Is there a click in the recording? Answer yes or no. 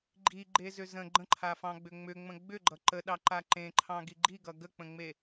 yes